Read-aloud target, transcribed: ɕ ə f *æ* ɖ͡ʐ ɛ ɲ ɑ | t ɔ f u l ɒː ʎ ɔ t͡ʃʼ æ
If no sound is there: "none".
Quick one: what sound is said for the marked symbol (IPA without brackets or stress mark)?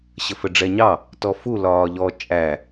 ə